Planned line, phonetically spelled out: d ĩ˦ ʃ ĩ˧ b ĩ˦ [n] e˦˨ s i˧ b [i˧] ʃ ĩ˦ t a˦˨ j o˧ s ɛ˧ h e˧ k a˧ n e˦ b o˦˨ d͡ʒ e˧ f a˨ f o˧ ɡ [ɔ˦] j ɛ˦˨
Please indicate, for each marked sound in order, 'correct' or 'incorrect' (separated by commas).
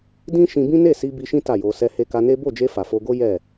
correct, correct, incorrect